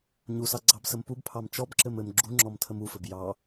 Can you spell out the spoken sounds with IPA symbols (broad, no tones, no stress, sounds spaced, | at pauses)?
ɲ u s ɑ ɡ͡ǀ ɑ b s ə m p u b pʰ ɑ m t͡ʃ ɔ b ǁ ɘ m ɘ m ɡ͡ǁ u ŋ͡ǁ ɔ m tʰ ə m u f ɘ b j ɑ